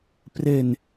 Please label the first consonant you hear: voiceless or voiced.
voiceless